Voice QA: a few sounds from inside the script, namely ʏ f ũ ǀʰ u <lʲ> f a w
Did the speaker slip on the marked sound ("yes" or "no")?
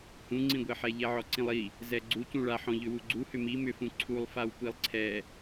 yes